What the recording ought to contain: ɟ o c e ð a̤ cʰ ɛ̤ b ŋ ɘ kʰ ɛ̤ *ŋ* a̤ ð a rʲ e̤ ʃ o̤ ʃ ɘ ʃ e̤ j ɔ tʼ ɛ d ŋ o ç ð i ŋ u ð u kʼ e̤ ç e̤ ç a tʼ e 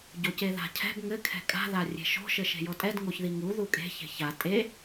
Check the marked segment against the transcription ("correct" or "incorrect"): incorrect